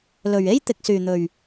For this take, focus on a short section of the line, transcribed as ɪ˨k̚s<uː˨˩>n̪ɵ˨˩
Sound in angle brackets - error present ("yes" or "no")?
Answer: yes